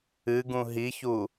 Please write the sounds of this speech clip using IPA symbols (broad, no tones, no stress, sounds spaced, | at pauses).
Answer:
ɨ ɡ ũ ɦ i ç u